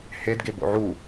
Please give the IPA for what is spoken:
hedɡe bo̰ʕu

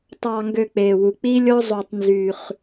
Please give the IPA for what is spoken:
tˤɑ˧ŋɡø˧k͡pe˨wu˨ k͡pi˦lʲo˦zˤo˧tˤ nzy˧χ

